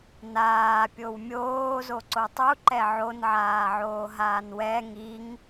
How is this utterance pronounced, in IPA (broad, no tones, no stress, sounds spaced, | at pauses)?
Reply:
n aː pʲ o w mʲ oː z o ǀ o tˤ u ǃ ɛ ʕ o n ʕ aː ʕ oː ɦ aː n w ɛ ŋ i ŋ